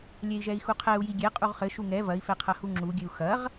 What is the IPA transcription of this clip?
lʲɛi̯ʒɛi̯xuqʰɛu̯ jiɡʲɛ qʼuʁχɘ ʃuŋɛ vɐi̯ fɛqʰɐhuŋ͡ǁu ɡʲɘu̯xɐʁ

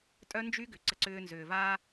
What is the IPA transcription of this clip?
tʼœ˦nd͡ʒy˦ ɡʏ˨ ǀə˦ǀʏː˦nzʏː˨vaː˦

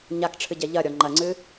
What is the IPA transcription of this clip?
ɲakʈ͡ʂʰɨɟɛ ʎɐɾʲɔ ŋ͡ǃɐŋ͡ǀɨ

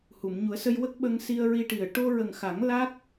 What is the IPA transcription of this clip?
hu˨˩˨mɲu˨˩˦ə̯sə˧j wə˦˥k̚ɓə˧ŋ si˧ə̯ɹi˧ʈi˨˩ə̯ ʈo˧ɹə˨˩ŋxa˨˩˦ŋ la˦˥k̚

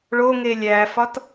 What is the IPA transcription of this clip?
ɭoŋe lʲæfɒt

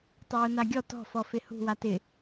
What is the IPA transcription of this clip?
tˤʊwʊnaɡʲɔ tɔ̤fɔ fɪhṳ watɪ

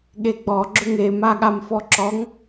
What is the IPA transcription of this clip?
ɠeɡ͡bɔ ɡ͡ǁʏŋe maɠamfɔǁɔŋ

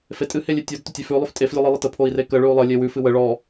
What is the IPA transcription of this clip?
fetʼɨ helʲetʲod tɵtʲefʉ lˠʉftʼef lʲʉlˠɨlˠətə pʰoi̯rekə ɭʉu̯lˠə lʲewʉ fɨwə ɭɔ

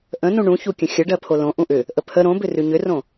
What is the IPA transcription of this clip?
ʔə̃nũ ɳũçukʲə̃ xʲəɖɜ pʰolõ ʔũʔʏ | ʔəpʰə ɾõbʏ rʉɲʏrõ

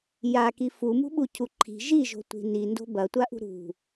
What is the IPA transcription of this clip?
jaki fumṳɓucʰu ǃʰi̤ ʒiʒo̤tʷi̤ nindo̤ bɐtʷaʔṳ ɾṳ

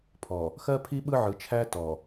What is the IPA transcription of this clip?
pʰɔ˨ | xɜ˦pʰi˦ ɓɯ˦ʕɯ˨t͡ʃʰæ˦ tɔ˨

